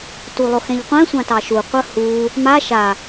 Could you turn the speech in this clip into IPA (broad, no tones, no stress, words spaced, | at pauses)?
tulˠoxɛ̃ʎqʷɛ̃ sʷãtɑʃu qʷəhu | ma ʃa